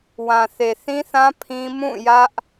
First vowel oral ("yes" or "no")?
no